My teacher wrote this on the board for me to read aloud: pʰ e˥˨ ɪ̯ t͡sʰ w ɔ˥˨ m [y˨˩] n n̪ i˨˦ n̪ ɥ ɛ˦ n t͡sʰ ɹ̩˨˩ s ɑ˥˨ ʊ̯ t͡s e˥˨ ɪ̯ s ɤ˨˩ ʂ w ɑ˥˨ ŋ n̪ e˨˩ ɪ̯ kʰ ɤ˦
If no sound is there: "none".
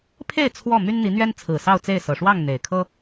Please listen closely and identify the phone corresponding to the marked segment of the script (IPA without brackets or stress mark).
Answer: y˦